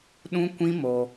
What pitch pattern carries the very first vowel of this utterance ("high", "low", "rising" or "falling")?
high